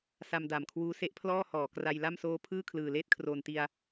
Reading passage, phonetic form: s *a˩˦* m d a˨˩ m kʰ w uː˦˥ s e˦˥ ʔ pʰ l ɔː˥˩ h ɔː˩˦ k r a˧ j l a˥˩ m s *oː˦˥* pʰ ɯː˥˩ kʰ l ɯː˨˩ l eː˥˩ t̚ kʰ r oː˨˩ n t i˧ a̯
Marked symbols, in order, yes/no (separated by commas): no, yes